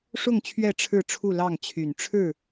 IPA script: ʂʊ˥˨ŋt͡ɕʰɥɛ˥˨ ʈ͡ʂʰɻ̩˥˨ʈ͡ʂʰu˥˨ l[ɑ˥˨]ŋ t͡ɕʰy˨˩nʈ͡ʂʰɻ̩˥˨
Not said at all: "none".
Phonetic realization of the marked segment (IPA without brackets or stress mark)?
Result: ɑ˥˨